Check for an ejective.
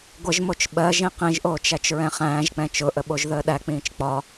absent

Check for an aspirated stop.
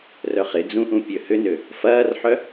absent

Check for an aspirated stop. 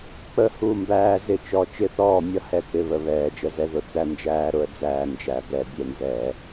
absent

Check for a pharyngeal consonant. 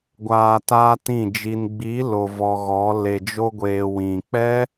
absent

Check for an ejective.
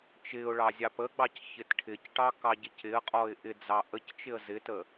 present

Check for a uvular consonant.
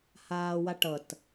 absent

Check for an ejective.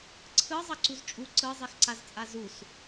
present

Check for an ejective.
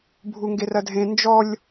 absent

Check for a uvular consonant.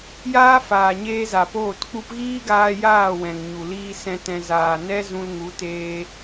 absent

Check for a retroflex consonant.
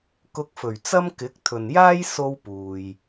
absent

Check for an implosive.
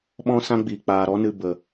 present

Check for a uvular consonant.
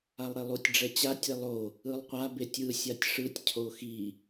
present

